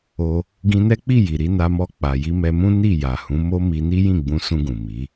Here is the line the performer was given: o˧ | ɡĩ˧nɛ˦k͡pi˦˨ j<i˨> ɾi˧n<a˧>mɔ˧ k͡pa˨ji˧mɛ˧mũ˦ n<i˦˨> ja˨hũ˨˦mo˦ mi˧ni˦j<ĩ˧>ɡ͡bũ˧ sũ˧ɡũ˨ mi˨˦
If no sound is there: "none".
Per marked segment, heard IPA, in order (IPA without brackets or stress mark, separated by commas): i˨, a˧, i˦˨, ĩ˦˨